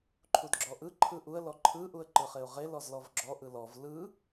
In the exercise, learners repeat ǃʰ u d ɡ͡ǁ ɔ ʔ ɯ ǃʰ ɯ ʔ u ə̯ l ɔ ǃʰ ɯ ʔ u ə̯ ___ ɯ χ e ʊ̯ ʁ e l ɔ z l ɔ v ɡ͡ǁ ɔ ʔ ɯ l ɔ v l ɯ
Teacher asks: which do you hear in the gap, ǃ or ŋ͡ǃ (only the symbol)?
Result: ǃ